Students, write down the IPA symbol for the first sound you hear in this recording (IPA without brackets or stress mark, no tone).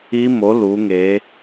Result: i